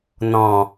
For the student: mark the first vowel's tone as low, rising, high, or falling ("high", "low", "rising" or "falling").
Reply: low